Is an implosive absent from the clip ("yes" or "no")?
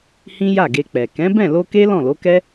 yes